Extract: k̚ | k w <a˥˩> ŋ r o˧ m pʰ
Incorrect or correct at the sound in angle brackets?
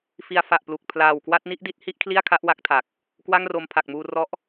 correct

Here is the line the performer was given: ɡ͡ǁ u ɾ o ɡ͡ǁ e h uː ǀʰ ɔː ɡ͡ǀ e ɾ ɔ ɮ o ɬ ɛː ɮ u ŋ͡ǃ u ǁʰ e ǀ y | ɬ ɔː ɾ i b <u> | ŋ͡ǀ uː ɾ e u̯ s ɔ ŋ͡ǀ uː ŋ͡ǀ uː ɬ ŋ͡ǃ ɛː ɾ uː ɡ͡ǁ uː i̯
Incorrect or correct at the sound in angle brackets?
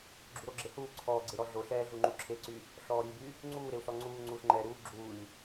incorrect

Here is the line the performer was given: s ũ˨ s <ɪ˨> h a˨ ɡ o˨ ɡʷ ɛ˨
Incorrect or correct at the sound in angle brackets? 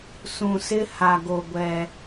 incorrect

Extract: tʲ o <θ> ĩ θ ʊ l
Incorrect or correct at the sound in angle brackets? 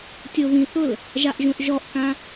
incorrect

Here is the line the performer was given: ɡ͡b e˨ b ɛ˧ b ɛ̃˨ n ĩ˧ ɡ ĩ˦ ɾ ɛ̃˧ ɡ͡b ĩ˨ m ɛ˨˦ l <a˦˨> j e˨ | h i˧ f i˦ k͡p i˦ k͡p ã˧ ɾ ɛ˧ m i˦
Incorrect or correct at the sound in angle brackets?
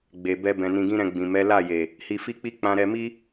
correct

